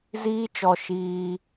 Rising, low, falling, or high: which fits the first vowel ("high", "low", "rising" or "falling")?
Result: high